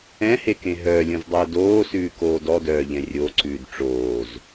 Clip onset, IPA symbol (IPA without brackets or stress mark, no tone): ɛ̃